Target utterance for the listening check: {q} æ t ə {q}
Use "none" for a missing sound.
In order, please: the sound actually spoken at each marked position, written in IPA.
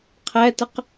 qʰ, q

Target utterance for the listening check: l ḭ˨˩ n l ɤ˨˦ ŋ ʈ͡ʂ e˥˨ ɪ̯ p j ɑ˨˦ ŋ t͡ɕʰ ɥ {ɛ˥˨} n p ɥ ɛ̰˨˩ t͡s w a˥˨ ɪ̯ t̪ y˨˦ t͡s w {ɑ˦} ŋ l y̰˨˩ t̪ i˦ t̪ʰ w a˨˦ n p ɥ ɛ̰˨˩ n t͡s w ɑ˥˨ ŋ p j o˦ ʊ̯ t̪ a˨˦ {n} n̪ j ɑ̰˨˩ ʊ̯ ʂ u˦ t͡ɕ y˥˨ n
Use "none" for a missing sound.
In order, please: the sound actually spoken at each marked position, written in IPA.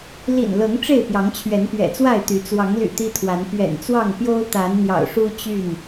ɛ˨˦, ɑ˨˦, n

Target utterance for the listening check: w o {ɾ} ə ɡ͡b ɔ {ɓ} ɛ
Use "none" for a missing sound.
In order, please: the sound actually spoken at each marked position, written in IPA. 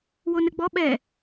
n, ɓ

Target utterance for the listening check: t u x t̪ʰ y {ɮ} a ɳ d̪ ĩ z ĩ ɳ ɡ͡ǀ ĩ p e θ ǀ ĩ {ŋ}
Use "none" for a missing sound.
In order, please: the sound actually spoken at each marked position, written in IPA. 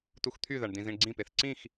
ð, x

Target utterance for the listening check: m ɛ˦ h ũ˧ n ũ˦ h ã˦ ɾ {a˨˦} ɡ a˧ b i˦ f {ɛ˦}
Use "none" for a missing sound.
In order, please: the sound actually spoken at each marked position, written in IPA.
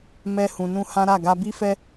a˦˨, ɛ˦

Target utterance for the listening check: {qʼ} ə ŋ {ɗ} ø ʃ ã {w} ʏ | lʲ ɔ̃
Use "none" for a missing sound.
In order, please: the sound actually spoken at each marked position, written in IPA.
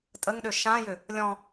tʼ, ɗ, j

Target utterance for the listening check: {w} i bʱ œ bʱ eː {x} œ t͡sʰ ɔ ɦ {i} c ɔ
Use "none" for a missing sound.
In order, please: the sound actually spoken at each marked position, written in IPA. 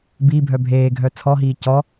b, ɡʱ, iː

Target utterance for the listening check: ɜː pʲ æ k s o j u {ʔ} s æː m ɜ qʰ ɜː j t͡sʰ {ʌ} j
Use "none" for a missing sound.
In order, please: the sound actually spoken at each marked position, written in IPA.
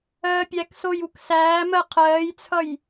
k, ʌ

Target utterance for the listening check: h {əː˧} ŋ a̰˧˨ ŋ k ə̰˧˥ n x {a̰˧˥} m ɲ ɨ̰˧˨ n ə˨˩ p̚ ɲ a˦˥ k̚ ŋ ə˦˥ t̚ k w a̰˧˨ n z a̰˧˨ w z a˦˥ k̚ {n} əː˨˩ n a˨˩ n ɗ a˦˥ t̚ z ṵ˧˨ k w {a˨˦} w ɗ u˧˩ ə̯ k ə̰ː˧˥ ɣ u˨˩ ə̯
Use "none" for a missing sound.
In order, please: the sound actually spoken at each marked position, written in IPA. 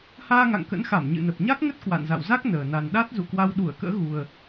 aː˧, a˧˩, n, a˧

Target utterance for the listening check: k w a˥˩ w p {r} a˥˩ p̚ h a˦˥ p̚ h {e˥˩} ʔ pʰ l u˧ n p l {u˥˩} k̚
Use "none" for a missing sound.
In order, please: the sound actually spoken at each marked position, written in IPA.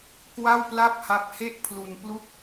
l, e˥˩, u˥˩

